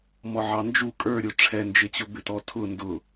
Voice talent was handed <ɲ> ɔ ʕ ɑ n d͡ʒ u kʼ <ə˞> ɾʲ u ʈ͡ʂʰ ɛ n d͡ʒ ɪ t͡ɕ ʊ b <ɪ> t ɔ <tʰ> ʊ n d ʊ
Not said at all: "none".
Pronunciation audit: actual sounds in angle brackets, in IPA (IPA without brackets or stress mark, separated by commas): m, ə˞, ɪ, tʰ